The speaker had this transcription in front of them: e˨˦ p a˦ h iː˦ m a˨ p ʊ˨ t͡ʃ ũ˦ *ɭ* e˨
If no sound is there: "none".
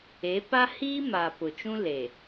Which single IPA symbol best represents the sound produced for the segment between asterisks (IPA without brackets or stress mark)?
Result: l